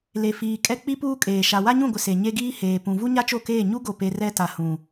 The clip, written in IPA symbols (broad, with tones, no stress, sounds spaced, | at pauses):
l e˨ f iː˨ kʼ ɛ˦ k͡p i˦ p uː˦ kʼ eː˨ ʃ a˨ w a˦ ɲ ũ˦˨ ɡʷ ɪ˨ s e˨ ɲ e˦ ɡ iː˦ h eː˨ p ũ˨ v u˦ ɲ a˦ t͡ʃ o˦˨ k eː˦˨ ɲ u˦ ɡ o˨ p e˨ r ɛ˦ t a˨ h ũ˨